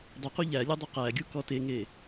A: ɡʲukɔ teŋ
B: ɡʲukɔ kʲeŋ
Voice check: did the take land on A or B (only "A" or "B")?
A